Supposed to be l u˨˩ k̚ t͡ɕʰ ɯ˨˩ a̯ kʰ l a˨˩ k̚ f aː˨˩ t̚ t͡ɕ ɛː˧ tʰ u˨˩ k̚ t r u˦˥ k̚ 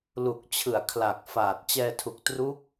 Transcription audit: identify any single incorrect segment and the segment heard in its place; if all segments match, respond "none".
none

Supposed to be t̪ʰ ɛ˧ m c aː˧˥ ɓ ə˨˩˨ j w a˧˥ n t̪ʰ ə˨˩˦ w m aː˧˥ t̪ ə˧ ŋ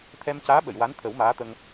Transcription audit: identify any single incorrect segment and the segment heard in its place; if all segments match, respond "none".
none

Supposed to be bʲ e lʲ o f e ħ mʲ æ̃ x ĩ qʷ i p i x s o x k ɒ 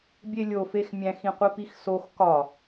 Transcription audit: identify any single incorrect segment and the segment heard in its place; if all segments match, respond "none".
ħ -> x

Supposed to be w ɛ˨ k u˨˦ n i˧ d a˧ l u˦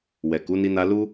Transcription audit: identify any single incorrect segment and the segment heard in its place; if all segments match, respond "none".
d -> n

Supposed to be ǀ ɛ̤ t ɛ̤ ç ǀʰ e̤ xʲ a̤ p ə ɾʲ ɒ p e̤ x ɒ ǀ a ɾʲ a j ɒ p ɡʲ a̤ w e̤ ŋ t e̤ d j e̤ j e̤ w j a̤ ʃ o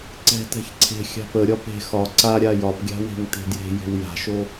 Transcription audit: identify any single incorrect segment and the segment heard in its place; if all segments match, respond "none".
none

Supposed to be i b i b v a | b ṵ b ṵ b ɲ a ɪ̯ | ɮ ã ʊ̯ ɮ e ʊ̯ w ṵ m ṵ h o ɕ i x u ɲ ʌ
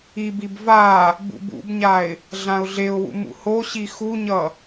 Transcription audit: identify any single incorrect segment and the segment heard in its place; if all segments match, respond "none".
none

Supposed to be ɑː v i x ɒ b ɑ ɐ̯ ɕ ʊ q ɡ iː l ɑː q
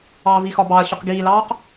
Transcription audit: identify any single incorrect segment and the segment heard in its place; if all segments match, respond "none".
none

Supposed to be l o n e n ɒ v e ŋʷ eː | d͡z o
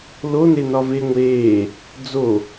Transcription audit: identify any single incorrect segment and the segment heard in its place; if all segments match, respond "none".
none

